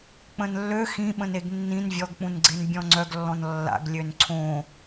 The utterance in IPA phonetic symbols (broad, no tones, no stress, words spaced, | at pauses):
k͡pə̃nlːø xĩɓə̃neɡ nːĩn vʲɔɡk͡pũnɡ͡ǀen bʲɔ̃ŋ͡ǀœɡlːɔ̃n lːa̰ɡ lʲønǀʰõ